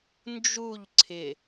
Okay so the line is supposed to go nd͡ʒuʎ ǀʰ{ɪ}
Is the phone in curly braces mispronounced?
no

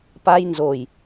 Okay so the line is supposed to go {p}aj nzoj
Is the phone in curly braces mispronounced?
no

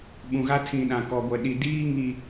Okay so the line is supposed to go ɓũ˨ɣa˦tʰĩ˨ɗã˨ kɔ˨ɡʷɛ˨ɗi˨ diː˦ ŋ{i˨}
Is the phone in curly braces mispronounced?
no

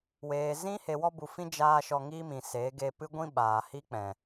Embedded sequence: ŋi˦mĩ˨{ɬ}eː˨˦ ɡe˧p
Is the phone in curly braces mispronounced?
yes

